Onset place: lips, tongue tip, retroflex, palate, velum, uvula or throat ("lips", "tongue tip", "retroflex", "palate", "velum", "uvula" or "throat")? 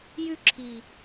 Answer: palate